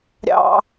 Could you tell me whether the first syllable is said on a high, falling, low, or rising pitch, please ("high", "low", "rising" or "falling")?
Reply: high